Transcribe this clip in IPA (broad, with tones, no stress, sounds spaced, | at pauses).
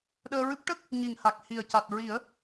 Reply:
ɗ əː˧ ɹ ɨ˦˥ p̚ ʈ ə˦˥ k̚ | ɲ i˨˩ ŋ h a˨˩ k̚ h i˨˩ ə̯ c a˨˩ t̚ ɹ i˨˩˦ ə̯